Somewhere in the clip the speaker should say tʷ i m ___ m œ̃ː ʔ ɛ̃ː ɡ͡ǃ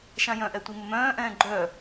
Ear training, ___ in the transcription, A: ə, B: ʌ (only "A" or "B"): A